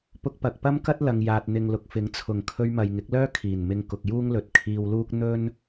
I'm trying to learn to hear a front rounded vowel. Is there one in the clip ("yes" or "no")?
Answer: yes